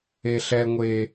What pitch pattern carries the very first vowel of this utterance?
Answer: high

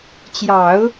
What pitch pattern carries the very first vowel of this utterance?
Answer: low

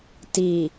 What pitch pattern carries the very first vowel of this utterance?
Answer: low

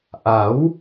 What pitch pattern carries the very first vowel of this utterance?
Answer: rising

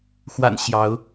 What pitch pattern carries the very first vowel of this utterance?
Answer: low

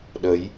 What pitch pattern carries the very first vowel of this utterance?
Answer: rising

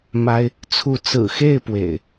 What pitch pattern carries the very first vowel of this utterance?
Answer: high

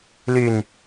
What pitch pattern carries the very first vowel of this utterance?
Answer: falling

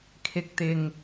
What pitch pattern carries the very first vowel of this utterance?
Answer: low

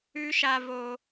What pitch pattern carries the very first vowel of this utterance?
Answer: high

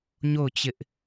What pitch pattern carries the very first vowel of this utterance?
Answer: falling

